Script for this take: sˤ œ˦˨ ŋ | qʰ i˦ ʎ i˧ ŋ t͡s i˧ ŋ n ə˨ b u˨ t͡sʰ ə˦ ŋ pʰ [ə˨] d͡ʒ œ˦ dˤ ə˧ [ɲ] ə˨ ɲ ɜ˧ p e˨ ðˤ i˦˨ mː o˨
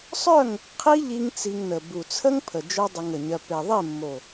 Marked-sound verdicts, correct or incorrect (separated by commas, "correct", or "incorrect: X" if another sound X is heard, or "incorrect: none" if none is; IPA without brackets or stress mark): correct, incorrect: ŋ